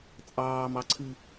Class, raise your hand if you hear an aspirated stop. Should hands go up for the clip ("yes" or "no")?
yes